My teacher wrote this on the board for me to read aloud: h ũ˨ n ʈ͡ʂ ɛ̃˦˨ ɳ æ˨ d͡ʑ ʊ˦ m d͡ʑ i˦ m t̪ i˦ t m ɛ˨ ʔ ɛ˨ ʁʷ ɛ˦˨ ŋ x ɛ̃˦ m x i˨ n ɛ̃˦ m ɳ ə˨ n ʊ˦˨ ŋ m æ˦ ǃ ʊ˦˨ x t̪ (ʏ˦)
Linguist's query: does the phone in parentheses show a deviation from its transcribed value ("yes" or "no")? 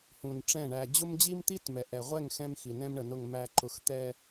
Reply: yes